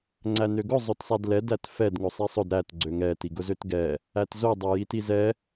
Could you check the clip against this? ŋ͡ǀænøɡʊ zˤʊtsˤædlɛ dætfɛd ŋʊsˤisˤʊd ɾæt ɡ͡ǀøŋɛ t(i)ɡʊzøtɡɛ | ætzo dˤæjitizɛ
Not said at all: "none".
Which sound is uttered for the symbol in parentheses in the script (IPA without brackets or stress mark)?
i